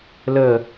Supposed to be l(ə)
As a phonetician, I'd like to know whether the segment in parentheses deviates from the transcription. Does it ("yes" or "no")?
no